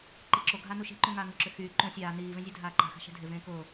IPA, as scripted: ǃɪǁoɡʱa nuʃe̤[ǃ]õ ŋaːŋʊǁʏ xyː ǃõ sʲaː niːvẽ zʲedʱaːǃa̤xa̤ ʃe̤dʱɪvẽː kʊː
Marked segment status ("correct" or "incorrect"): correct